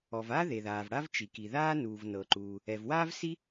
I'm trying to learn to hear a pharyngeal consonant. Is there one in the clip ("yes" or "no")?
no